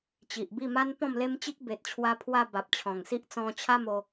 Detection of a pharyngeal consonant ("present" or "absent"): absent